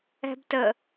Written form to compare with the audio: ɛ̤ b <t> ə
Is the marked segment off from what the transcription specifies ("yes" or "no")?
no